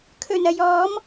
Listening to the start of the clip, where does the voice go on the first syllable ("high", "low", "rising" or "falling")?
low